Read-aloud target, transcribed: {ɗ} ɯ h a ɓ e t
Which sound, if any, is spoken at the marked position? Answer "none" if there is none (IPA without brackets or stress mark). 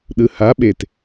ɗ